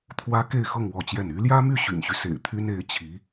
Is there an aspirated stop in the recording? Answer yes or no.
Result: yes